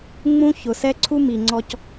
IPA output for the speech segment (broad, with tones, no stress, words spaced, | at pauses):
ŋ͡mũ˦çʊ˨sɛ˦ǀʰu˦ mi˨ŋ͡ǀɔ˧c